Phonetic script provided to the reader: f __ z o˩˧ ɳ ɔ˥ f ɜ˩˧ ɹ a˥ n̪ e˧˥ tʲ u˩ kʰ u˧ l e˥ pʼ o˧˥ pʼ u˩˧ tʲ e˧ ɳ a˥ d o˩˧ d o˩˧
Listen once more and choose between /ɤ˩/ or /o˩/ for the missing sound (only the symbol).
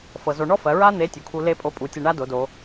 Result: ɤ˩